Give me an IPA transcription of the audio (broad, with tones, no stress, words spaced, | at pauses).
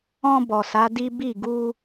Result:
ɔ̃˧ bɔ˨sa˨˦di˦ bi˦˨ ɡu˧